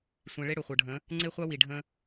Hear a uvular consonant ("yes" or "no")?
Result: yes